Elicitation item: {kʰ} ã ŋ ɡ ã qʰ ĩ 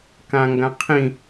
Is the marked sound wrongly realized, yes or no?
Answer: yes